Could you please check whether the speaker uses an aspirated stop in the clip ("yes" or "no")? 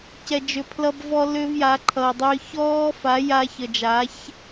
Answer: yes